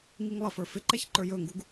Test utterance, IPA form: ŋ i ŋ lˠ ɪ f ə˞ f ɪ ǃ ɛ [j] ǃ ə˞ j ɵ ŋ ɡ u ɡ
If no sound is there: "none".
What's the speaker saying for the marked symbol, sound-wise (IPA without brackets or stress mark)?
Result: ç